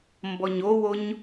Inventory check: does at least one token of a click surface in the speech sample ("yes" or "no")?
no